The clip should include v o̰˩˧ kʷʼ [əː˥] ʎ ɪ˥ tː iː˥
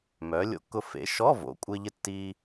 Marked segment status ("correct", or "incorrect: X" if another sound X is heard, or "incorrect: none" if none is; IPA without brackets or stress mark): incorrect: ɪː˥